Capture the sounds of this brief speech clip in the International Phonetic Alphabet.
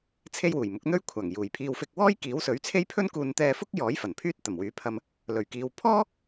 t͡sʰe˥jwuː˨˩jmʊ˨˥k̚ n̪ɵ˥ɥkʷʰaː˨˩ŋ juː˨˩jpʰiː˧w fɪ˧k̚wɔː˥jkiː˨˥w sɵ˨˥ɥt͡sʰe˥jpʰɵ˥nkuː˧n t̪ɛː˧fʊ˥k̚jɔː˨˥j fɐ˨˩npʰyː˥t̚t̪ɐ˨˩m wyː˨˥pʰɐ˧m | lɵ˨˩ɥkiː˨w pʰɔː˥

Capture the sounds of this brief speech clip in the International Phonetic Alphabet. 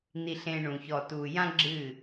n̪i˨ ɬẽ˨ ɳũ˨çɔ˨ tu˨jã˦ ɡ͡ǁɨ˦˨

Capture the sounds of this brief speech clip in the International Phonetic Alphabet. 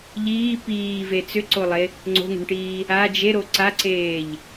ʎiː piːve t͡sʏǀolˠe | ŋ͡ǀo̤ŋo̤ɳʈiː | a d͡ʒeɾo ǀaǀeːʎ

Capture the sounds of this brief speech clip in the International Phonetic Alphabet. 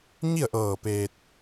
ɲi˥˨ə̯ʔɤː˧˩ peː˧t̚

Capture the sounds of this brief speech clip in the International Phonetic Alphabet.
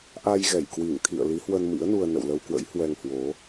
ʔa˧jɣɛ˧˩jkwi˧˩ŋt̪ʰḭ˧˨ə̯ li˨˦hwə˧nmḭ˧˥ə̯ nu˧ə̯nə̰˧˨wlə˧wkwə̰˧˥j hwɛ˧ŋhwo˨˦

